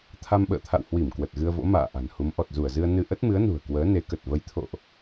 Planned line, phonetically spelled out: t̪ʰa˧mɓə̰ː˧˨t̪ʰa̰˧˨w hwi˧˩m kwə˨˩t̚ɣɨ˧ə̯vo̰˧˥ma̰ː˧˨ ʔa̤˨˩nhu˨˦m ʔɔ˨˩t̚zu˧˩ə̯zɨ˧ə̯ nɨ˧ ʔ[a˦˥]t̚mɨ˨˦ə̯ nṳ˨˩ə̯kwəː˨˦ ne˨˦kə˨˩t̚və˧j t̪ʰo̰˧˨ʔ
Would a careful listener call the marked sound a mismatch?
yes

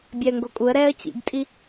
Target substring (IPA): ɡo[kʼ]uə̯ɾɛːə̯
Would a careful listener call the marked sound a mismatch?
no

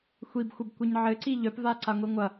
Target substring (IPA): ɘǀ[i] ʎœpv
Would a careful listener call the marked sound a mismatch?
no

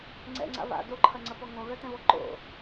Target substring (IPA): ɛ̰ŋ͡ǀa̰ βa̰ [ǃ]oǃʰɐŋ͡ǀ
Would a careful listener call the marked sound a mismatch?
yes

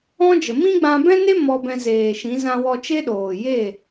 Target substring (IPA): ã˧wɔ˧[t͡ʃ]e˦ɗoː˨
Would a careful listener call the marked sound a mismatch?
no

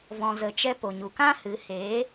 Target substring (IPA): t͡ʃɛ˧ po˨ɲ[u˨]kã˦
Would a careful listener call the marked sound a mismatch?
no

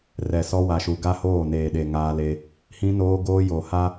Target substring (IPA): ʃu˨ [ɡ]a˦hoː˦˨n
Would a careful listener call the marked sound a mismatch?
no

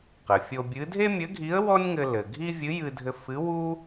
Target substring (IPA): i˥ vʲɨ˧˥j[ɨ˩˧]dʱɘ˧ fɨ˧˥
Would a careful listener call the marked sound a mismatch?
yes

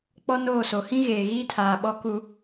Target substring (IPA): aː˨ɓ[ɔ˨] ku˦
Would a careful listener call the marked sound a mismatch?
yes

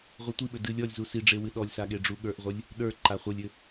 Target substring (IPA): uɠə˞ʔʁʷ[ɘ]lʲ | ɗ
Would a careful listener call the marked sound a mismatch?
no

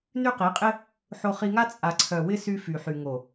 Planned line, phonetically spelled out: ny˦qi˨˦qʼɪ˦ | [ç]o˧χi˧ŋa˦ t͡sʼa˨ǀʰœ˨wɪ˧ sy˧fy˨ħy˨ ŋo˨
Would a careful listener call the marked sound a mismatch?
yes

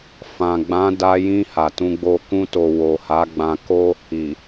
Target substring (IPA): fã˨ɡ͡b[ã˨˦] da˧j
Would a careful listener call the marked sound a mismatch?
no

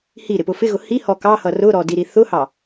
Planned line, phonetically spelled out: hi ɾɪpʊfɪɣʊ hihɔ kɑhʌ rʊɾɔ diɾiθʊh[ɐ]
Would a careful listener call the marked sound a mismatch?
yes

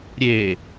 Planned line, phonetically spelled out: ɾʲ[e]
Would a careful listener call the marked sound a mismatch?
yes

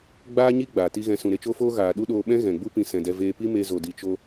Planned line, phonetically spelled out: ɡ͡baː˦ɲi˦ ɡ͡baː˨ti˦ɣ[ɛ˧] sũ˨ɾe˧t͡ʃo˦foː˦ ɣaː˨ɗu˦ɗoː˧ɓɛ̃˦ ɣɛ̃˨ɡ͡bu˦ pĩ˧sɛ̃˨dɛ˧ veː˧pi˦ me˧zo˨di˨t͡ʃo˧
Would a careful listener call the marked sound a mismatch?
yes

